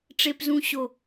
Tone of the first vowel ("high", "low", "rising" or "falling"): high